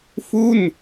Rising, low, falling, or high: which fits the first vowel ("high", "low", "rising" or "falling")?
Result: falling